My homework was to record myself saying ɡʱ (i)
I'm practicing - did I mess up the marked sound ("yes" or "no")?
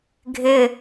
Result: yes